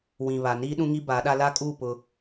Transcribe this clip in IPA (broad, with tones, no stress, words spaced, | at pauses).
wĩ˨βa˨ niː˦ɗũ˦ ŋi˦ ba˨˦ɗa˦ la˦kʼu˦˨ pʊ˦